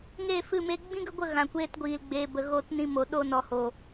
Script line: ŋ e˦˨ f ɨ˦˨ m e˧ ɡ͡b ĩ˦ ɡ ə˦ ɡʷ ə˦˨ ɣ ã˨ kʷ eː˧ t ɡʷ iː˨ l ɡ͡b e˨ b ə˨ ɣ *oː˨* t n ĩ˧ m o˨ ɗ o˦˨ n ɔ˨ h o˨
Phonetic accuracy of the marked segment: incorrect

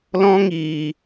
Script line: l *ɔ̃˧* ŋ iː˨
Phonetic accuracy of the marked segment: correct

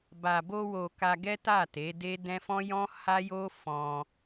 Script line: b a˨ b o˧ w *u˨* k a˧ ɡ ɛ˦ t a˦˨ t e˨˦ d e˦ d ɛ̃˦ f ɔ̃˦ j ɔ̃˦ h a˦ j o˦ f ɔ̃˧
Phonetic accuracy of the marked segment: incorrect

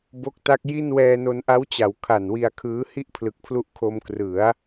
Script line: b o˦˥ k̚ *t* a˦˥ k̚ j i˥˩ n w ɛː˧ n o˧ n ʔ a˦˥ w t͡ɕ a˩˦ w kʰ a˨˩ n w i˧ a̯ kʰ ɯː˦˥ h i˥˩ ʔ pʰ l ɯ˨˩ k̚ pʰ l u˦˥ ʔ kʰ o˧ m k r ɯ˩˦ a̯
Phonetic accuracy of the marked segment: correct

